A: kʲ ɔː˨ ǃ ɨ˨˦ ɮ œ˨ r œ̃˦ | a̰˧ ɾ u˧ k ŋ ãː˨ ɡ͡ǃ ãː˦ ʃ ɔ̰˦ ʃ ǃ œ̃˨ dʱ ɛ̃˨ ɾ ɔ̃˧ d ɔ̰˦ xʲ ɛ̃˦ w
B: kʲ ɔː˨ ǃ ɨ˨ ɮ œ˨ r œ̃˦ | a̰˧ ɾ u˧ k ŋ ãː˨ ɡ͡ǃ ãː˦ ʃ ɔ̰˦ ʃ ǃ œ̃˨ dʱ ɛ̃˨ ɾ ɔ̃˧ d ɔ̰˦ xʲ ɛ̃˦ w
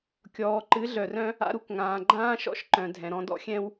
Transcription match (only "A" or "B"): A